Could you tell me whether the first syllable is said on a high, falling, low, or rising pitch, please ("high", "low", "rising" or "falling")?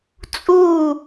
falling